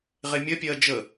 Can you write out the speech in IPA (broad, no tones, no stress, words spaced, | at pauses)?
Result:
ʁemʲɜpʲɜː d͡ʒə